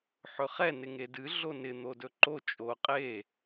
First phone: ħ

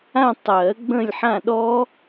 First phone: ã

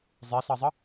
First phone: zˤ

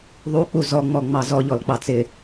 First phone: ðˤ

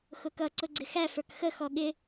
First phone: x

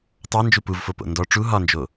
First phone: tˤ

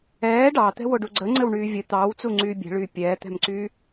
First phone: ɛː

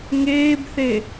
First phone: ŋ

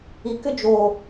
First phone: i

